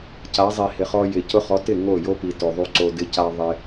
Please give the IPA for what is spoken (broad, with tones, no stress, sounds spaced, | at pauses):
c a˨˦ zˤ i˨ h ɪ˨ χ ɔ˧ j ɪ˨ c ʊ˧ χ ɔ˨˦ t ɪ˦˨ ŋ o˦˨ j o˦ p i˨ t o˨ ðˤ u˦ ǀ o˧ d ɪ˧ c a˧ ðˤ ɪ˧